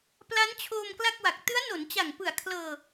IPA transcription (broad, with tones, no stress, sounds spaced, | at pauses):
p l a˦˥ n t͡ɕʰ oː˧ m k l a˥˩ k̚ w a˨˩ k̚ t ɯ˦˥ a̯ n o˩˦ n t͡ɕ a˨˩ ŋ p ɯ˨˩ a̯ kʰ l ɤː˧